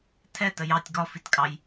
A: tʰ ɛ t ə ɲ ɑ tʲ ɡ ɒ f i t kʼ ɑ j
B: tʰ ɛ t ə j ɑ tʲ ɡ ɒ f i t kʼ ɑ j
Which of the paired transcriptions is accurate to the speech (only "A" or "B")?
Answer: B